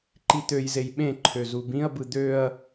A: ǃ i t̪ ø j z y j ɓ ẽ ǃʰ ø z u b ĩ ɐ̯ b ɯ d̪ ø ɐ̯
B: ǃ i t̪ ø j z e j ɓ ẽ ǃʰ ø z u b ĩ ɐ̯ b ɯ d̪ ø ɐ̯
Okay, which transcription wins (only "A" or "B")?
B